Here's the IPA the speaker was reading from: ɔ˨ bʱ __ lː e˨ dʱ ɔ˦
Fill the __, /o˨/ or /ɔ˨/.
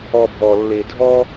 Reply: ɔ˨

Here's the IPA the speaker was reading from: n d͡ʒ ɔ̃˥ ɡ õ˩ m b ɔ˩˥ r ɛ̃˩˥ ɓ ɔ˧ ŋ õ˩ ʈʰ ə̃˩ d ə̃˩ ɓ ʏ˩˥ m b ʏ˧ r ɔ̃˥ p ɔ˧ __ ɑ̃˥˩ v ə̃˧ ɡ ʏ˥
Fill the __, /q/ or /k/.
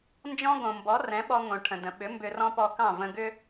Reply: k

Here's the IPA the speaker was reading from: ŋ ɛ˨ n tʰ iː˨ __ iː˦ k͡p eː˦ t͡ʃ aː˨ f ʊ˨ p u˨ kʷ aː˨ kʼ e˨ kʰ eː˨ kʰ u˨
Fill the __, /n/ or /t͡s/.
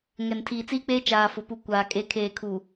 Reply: t͡s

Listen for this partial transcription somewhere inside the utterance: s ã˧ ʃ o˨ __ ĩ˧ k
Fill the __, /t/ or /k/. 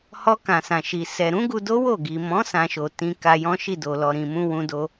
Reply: t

